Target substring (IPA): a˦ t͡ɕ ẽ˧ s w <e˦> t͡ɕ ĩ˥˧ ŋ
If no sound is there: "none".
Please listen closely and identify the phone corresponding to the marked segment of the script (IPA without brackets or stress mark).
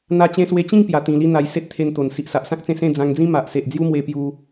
e˧